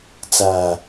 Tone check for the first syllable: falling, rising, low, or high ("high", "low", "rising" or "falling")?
low